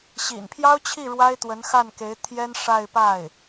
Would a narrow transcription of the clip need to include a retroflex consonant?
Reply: yes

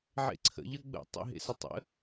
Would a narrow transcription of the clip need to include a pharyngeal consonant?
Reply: yes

